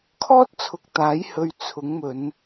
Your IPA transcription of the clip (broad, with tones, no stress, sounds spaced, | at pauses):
kʰ ɔː˥ t̚ t͡sʰ ʊ˨˥ k̚ t̪ aː˨˥ j h ɵ˧ ɥ t͡sʰ ʊ˨˥ ŋ m ɵ˨˧ n